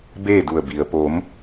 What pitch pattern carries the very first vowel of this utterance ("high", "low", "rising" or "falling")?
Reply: falling